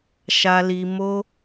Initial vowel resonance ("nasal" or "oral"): oral